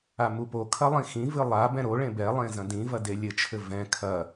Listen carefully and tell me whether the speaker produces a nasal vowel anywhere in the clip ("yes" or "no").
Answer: yes